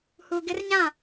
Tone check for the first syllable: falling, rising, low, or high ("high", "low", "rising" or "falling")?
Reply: low